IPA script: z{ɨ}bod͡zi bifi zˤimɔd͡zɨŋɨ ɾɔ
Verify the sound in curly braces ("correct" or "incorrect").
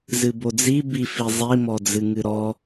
correct